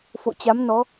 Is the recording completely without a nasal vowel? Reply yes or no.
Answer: yes